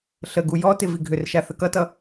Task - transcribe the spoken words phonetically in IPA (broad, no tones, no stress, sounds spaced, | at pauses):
ɬ ə ɡ u j ɔ t ɪ v i ɡʱ ʏ r ʃ a θ ə k ʌ t ʌ